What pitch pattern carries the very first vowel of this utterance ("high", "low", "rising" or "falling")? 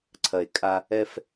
low